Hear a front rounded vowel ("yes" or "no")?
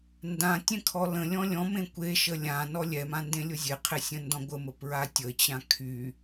yes